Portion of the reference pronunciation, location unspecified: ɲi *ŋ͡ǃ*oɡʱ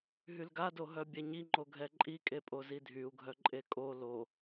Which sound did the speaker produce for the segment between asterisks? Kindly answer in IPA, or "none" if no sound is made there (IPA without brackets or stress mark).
ŋ͡ǃ